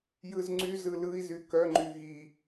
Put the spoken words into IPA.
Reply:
j ɯ z ŋ͡ǀ y z ɯ l ɯ i̯ z y k œ ŋ͡ǃ y ɣ i

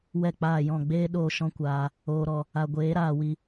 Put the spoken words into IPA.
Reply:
w ɛ˦˨ k͡p aː˦˨ j ɔ̃˦˨ ɡ͡b eː˦ ɗ oː˧ ʃ ɔ̃˦ kʷ aː˧ | oː˧ ɾ ɔ˧ | a˧ ɡʷ eː˨˦ ɾ aː˦˨ w i˧

